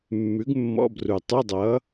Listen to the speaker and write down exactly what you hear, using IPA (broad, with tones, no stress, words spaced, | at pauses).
mːʉ˨˥ɡmːɔ̰˧˥˧bru˨˩ tˤʉ˧˥˧dˤʌː˨˥